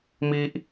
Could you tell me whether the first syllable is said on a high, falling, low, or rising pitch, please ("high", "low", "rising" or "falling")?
high